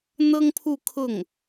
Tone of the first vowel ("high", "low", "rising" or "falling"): high